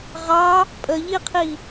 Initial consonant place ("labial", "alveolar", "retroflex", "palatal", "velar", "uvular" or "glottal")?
uvular